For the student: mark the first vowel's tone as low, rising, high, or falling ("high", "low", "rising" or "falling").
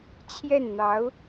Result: falling